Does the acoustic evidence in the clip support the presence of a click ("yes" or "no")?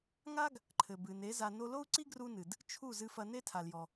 yes